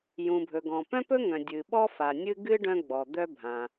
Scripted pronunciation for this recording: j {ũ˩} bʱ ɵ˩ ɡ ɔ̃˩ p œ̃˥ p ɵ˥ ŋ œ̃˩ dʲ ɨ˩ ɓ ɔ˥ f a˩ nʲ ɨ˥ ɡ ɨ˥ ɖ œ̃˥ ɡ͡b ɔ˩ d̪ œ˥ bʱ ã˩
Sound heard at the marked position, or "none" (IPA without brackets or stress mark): ũ˩